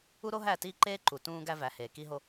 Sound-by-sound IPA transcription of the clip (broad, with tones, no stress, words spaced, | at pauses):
u˦ɾo˦ɦæ˦˨tiː˦ ǃeː˦ǃu˨ tũː˦ɡæ˦væ˨˦heː˨ ki˦ɦo˦